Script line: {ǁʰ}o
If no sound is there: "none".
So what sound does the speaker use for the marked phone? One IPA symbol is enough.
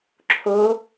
ǁʰ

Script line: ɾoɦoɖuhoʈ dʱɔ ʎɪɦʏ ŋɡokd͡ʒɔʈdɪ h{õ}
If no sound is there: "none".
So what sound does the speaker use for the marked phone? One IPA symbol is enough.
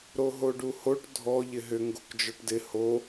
o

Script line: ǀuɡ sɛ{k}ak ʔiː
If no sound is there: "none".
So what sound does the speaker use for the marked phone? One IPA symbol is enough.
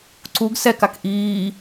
k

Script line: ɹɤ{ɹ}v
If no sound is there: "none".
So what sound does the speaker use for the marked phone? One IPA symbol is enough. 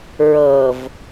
none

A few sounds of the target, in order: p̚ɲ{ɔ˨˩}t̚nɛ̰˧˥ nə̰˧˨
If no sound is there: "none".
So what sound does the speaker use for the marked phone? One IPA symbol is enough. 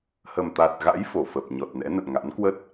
ɔ˨˩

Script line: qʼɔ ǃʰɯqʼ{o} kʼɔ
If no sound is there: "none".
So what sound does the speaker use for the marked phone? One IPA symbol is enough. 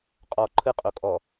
o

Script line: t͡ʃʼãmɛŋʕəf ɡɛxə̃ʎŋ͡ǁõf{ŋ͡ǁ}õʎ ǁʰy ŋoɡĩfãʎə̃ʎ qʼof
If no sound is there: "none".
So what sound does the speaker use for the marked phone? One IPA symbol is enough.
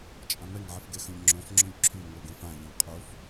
ŋ͡ǁ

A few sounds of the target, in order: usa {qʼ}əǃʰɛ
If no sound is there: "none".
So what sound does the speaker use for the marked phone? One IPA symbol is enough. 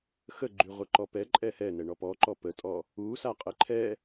qʼ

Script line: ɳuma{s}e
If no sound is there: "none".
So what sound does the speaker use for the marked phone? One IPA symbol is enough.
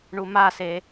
s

